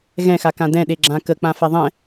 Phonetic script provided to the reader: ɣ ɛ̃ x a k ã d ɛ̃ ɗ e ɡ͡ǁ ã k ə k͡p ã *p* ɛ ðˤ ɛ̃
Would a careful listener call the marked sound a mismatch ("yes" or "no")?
yes